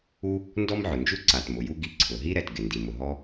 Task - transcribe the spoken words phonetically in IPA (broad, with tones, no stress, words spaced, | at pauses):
u˥ | ndɔ˥mʕʊ˩nd͡ʒu˥ ǀa˩tmʊ˩ju˥ ɡi˩ǀʰʊ˩ɦi˥ɾɛ˩t ɡɪ˩ ndi˩mʊ˩ɦɔ˥